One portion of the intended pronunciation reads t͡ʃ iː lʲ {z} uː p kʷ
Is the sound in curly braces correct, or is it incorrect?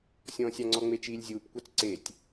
incorrect